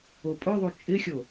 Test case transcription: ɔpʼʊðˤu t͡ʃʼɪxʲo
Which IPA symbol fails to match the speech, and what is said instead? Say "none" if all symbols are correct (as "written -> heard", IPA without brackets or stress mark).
ɔ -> o